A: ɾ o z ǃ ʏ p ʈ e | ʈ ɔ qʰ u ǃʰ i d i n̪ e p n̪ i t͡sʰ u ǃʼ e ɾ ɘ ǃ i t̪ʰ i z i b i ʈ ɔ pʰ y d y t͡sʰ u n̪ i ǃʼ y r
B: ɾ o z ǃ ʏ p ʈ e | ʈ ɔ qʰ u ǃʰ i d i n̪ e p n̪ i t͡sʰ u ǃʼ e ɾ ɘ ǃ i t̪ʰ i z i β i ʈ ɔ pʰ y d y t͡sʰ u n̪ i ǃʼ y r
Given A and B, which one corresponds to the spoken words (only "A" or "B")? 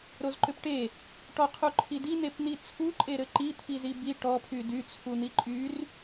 A